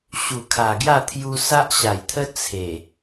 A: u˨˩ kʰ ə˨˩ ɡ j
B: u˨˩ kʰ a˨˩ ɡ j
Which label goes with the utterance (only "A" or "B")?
B